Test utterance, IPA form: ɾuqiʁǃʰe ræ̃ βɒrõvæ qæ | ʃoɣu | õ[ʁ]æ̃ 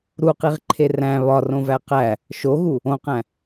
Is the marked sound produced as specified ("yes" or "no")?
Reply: no